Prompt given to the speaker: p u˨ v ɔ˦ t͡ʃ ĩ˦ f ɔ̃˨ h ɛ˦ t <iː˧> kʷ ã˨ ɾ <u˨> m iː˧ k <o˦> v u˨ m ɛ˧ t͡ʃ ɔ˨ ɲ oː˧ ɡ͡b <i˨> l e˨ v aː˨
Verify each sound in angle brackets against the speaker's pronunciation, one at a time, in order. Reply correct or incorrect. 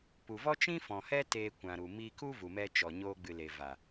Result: incorrect, correct, incorrect, incorrect

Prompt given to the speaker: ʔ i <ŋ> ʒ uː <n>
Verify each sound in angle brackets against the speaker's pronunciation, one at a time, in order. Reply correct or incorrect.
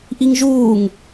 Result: correct, incorrect

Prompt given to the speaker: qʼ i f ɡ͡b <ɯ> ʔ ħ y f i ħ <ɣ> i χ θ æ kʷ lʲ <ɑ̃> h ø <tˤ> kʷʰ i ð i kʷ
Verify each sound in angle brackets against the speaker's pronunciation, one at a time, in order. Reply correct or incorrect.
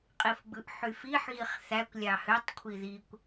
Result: correct, correct, incorrect, correct

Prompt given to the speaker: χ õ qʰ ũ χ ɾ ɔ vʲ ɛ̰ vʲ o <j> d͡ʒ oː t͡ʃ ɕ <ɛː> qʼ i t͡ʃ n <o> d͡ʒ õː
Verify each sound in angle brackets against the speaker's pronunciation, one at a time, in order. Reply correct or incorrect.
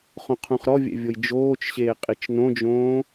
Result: correct, incorrect, incorrect

